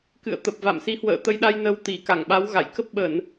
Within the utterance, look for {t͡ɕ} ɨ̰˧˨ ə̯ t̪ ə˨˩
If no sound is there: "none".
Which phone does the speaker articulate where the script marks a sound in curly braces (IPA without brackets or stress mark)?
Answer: k